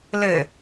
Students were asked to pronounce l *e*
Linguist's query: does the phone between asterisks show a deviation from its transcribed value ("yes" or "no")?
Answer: yes